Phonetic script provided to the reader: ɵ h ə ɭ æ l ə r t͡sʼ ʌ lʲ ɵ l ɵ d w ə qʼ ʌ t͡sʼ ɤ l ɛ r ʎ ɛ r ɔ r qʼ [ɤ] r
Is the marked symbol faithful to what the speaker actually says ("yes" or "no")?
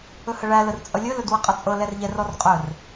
no